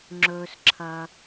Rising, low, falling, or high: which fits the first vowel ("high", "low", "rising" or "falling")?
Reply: low